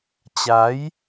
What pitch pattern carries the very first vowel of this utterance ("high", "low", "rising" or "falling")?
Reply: rising